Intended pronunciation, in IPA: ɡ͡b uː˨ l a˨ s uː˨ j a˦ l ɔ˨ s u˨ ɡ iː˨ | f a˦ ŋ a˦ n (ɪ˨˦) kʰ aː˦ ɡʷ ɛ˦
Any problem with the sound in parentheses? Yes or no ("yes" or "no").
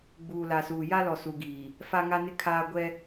yes